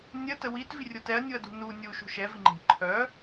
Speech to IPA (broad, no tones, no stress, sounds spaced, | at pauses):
nʲ ə t ə w i t v i rʲ o t ɛ ɐ̯ nʲ u ɐ̯ d ṳ n u nʲ u ʃ ṳ ʃ ɛ v i ŋ͡ǃ e̤ ǃʰ œ